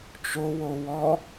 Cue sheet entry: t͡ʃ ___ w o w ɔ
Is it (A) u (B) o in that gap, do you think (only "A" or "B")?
B